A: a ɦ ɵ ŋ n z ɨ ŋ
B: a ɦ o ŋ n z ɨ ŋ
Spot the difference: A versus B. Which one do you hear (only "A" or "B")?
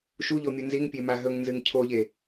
A